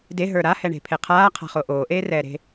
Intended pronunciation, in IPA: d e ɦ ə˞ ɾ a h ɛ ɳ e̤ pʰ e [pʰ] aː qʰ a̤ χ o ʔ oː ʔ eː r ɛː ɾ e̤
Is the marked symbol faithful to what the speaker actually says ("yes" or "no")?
no